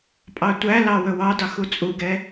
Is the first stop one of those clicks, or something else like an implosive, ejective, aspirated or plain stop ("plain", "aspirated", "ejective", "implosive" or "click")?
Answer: ejective